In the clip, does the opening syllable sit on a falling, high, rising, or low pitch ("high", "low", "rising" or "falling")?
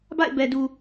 falling